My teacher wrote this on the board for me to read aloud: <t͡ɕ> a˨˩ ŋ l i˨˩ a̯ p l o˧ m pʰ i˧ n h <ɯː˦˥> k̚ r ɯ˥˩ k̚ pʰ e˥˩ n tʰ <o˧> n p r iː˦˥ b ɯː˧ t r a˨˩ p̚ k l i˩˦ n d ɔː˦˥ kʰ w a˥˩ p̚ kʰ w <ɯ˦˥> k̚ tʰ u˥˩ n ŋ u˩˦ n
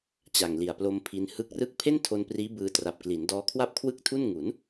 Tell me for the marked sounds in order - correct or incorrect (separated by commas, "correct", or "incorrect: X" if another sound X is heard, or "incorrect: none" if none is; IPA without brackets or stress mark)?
correct, incorrect: ɯ˦˥, correct, incorrect: ɯ˥˩